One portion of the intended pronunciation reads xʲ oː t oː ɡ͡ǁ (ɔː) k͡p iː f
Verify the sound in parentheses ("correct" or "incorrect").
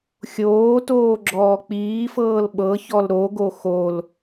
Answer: correct